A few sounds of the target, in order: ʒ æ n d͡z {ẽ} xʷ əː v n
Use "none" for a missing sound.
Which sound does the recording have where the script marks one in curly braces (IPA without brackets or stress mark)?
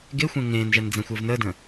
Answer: ɛ̃